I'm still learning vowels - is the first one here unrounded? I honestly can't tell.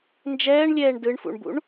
yes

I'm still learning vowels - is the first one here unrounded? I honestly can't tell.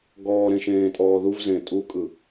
no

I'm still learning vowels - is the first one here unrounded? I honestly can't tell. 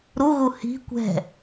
no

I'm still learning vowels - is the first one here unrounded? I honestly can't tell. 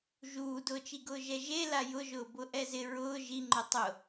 no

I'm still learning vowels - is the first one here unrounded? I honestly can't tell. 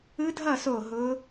yes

